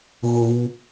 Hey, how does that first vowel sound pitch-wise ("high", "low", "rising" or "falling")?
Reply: low